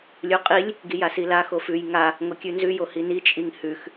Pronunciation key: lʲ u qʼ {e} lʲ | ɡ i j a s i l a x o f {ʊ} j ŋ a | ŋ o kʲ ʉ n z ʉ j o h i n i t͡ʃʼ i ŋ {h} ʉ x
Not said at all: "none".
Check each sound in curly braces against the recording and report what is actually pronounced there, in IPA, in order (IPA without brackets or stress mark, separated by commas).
i, ʉ, h